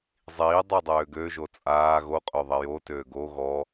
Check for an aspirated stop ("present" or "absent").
absent